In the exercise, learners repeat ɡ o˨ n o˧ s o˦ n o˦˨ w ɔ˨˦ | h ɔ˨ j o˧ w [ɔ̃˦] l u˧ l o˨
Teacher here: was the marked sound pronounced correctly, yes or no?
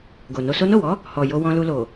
no